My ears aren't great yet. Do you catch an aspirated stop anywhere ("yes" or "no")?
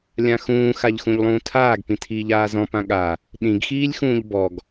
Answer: yes